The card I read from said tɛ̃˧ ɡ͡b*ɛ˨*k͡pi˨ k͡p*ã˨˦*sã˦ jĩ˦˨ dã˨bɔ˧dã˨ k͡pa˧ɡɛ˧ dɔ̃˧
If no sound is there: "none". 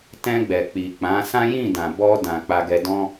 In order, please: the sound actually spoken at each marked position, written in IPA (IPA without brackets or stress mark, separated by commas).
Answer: ɛ˨, ã˨˦